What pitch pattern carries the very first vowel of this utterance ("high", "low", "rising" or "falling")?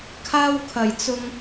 high